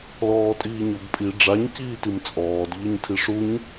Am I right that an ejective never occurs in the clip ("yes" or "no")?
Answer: no